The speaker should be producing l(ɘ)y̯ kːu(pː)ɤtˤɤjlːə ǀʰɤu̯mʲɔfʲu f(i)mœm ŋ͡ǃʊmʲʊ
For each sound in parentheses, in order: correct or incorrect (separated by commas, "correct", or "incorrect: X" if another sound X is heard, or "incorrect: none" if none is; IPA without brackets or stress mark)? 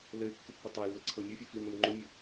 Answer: correct, correct, correct